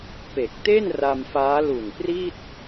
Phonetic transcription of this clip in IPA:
p e˨˩ k̚ t e˥˩ n r a˧ m f aː˦˥ l u˨˩ n p r i˥˩ t̚

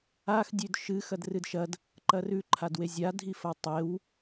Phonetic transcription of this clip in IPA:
a x dʲ ʉ d ʃ ɨ x ɐ d r ɨ d ʃ ɐ d | ǃ ɐ r ʉ ǃʰ a d w e zʲ a dʱ i f ɐ w tˤ e w

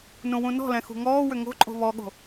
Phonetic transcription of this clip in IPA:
n ũ w ũ n ɔ̤ l ɛ̃ x ṳ ŋ ɔː w ʏ ŋ o̤ ǃʼ o̤ β ɔ ɠ o̤

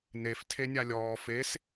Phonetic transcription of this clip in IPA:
n e f tʰ e nʲ a lʲ ɔː f e s

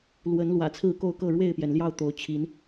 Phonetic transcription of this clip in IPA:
l w ə˨˦ n l w ä̰˨˩ t͡sʰ ɹ̩˥˨ k o˥˨ ʊ̯ k ɤ˥˨ ɻ w e˥˨ ɪ̯ p j ɛ˩ n l j ɑ˥˨ ʊ̯ t̪ o˨˦ ʊ̯ t͡ɕʰ i˨˦ n

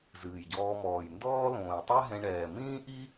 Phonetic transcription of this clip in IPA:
z ɨː˩ j ɟ ɔː˨ m ɔː˩ j n d ɔː˦ l õː˩ j tˤ ɛ˦ ɦ ɛ̃˨ ɳ ɛː˩ m ĩː˦ ʔ i˦

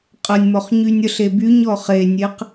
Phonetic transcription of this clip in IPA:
qʼ ə nʲ m ɔ χ ɲ y nʲ ə ɬ e b y ɲ ɔ χ e nʲ e q

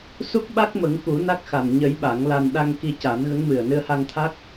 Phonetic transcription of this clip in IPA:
s u˦˥ k̚ ɓ a˦˥ k̚ m ə˨˩˦ ŋ k u˨˩˦ n a˦˥ k̚ x a˨˩ n ɲ ə˨˩˦ j ɓ a˨˩˦ ŋ l a˧ n ɗ a˧ ŋ k i˧ c a˨˩˦ n ɣ ə˧˥ ŋ m ɨ˨˩ ə̯ n ɨ˧ ə̯ h a˧ ŋ t̪ʰ a˦˥ k̚

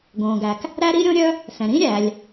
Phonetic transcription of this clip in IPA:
ɡ õː˩ ɡ æ˩ k | ɾ æ˥ ɾ i˥ ɾʲ õ˥ ɾʲ œ˥ | s ɛ̃˩ ɾ ĩ˥ ɾʲ æ˩ lʲ

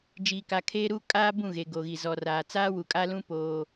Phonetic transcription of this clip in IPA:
d͡ʒ iː˨ k a˨ kʰ eː˦ ɾ u˦ kʼ aː˦ b ũ˦˨ ɣ e˨ ɡ o˨ ɣ i˨ z ɔ˨ r aː˨ t͡s aː˦ w u˨ kʼ a˦ l ũ˦ p oː˦

